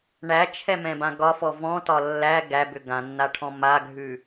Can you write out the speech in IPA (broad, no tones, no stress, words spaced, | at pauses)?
ɳæt͡ʃʰɛmɛ̃bã ɡɒfɔ vɔ̃tɒ lːæ ɡæbʏ ɡãnːaʈʰɔ̃ maɡʱʉ